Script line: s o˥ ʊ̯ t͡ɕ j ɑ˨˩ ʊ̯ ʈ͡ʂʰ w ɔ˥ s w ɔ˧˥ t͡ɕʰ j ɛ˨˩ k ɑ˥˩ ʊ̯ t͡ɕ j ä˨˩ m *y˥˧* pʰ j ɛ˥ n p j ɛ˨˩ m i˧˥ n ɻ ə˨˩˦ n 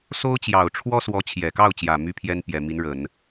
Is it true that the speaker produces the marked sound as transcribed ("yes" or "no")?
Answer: no